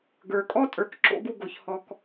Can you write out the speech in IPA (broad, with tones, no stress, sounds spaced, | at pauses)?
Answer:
ɡ ə˞˨ kʼ ɔ˦ tʼ ə˞˦ k ǁ o̰˦ ɡ u˦ ɡ o˧ ç h ɔ˦ k